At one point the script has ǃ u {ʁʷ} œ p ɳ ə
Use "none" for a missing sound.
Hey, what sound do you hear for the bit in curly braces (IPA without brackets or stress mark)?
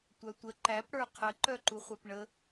χʷ